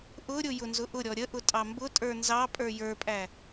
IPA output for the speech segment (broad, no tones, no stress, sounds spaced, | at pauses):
ʔ ʊ ɾʲ ʊ j ʊ n z ʊ ʔ ʊ ɾʲ ɔ ɾʲ ə ʔ ʊ tʼ ɑ m b ʊ tʼ ə˞ n z ɑ pʼ ə˞ j ə˞ pʼ æ